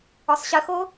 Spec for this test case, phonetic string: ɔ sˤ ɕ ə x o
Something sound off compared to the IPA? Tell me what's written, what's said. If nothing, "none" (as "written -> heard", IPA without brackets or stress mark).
none